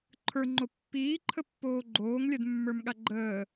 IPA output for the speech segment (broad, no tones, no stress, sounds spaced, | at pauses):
ǃʰ ə˞ ŋ͡ǃ o pː iː ǃʰ ə pː oː ɡ͡ǃ oː ŋ lʲ ɛ d mː ə˞ m ɠ a ɡ͡ǃ əː